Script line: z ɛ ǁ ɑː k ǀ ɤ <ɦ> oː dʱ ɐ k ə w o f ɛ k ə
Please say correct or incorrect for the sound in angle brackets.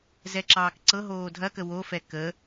correct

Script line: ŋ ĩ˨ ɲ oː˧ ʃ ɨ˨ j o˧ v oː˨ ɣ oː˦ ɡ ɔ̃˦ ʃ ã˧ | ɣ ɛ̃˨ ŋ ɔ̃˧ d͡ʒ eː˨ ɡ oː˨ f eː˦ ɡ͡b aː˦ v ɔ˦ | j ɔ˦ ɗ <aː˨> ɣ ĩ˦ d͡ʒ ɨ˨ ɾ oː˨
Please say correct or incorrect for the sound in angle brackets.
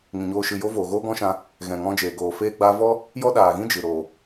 correct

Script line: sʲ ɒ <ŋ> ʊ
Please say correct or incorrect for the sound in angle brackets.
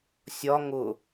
correct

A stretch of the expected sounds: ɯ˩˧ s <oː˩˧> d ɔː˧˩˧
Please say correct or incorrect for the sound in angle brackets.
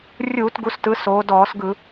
correct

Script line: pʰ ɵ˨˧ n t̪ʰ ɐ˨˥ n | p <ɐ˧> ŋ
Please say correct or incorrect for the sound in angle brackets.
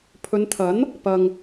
correct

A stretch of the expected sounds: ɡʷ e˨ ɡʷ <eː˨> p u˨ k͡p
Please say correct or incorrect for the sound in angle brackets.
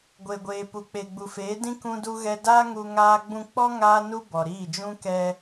correct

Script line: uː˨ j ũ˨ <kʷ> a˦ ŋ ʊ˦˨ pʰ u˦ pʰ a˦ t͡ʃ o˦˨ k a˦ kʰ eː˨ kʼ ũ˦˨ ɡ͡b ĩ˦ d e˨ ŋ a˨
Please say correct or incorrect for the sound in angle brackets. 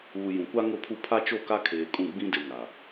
correct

